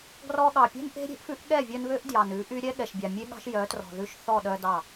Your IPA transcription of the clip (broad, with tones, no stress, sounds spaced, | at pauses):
ɡ r ɔ˧ ɠ ɑ˨ pʲ ɛ̤˦ n ʔ e̤˦ ɾʲ e̤˦ ʔ f ʉ˦ ʔ ɠ ɛ˦˨ vʲ œ˧ n β ø˦ ʔ d j ɑ˨ n ʉ˨˦ ʔ y˦ ɾʲ ɛ˦ ɠ ɛ˨ ʃ bʲ ɑ˨ mʲ e˦ ɠ ɑ̤˦ ʃ j œ˨˦ t r ɔ̤˨ ð ʉ˧ ʃ θ ɔ˦˨ ɗ œ˧ d ɑ˦˨